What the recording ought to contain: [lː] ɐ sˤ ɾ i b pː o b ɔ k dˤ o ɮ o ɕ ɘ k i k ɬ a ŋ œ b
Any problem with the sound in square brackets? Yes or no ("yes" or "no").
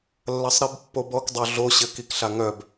no